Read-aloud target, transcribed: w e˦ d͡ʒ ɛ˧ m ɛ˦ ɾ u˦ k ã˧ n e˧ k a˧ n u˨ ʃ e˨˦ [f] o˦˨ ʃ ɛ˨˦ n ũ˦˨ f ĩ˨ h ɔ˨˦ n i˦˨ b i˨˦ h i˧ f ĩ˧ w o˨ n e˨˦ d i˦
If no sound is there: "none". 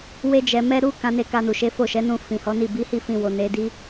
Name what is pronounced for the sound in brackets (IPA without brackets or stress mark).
f